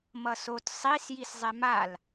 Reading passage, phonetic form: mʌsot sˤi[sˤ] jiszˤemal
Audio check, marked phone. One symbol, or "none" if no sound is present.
s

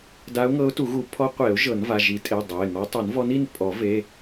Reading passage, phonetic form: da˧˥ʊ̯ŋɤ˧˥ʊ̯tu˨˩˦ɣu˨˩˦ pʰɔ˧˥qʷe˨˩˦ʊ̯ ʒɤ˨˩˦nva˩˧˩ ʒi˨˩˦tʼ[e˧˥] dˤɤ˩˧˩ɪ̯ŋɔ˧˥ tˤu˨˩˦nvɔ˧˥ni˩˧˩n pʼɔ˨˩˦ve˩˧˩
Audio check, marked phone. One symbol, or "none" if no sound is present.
e˩˧˩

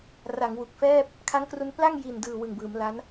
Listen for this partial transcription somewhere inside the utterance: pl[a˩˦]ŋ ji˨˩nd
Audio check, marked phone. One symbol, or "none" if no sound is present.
a˥˩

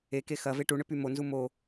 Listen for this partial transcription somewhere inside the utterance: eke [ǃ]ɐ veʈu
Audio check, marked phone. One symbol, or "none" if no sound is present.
x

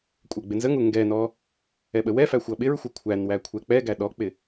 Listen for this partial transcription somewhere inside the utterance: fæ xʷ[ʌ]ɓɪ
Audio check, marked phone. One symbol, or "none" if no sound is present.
ʌ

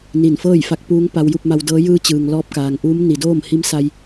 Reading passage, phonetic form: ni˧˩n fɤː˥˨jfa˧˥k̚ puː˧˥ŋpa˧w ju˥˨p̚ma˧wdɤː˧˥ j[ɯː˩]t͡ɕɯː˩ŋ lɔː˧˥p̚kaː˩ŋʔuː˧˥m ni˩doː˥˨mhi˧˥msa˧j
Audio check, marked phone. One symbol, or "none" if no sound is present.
ɯː˧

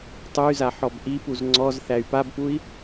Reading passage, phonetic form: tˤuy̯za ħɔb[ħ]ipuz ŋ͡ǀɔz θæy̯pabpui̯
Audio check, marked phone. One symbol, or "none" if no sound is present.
ʔ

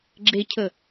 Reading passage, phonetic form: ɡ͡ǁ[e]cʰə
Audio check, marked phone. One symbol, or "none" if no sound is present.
e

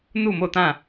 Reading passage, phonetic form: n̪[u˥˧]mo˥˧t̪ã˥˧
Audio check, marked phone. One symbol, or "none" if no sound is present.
u˥˧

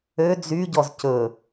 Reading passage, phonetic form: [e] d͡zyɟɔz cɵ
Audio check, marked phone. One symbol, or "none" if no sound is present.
ø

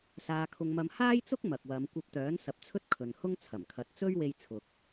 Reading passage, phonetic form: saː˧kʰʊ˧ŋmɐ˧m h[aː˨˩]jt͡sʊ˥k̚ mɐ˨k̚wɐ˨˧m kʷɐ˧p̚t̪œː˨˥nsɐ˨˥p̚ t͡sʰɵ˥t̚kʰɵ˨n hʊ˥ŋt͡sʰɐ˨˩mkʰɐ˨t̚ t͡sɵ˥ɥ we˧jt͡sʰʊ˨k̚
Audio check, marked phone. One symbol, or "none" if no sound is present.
aː˥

